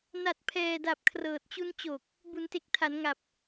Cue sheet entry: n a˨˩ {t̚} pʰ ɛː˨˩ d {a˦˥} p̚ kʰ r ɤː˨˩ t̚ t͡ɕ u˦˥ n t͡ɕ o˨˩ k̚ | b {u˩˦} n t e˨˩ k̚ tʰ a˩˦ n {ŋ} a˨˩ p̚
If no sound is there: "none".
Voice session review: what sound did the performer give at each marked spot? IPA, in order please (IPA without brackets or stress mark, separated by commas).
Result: t̚, a˨˩, u˩˦, ŋ